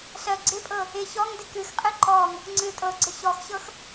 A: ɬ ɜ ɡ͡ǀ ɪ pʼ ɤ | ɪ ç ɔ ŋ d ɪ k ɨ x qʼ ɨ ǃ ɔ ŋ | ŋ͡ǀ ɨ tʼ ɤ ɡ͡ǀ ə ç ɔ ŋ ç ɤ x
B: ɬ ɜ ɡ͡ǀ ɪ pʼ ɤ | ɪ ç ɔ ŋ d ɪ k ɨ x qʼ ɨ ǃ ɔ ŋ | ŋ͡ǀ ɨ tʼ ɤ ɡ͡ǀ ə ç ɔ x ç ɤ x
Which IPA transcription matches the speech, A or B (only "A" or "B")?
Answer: B